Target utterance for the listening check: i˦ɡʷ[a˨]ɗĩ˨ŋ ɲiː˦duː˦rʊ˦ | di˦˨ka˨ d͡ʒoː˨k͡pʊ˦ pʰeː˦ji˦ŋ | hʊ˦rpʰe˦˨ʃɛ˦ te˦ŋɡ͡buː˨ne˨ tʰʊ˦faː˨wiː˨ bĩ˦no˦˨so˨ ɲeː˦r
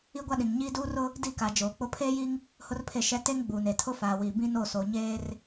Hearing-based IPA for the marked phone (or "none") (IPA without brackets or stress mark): a˦